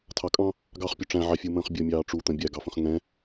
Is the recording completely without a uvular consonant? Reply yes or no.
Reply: no